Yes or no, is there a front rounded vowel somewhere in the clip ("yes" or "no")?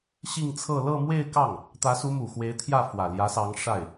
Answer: no